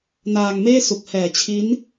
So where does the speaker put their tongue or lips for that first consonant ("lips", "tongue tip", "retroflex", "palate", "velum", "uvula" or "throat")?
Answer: tongue tip